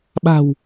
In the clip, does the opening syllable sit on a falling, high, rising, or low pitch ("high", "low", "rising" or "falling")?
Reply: low